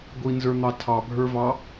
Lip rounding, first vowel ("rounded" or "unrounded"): unrounded